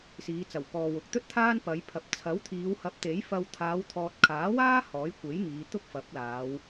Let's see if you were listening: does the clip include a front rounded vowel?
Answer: no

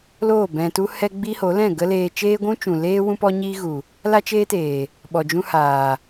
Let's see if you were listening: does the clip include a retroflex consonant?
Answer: no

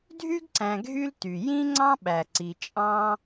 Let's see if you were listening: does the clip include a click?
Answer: yes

